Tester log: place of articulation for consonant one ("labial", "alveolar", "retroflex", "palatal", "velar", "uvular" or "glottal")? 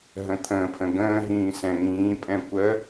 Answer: glottal